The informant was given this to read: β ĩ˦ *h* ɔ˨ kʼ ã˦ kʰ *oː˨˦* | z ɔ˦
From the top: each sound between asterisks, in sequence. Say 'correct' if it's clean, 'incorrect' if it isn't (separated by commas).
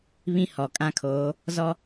correct, correct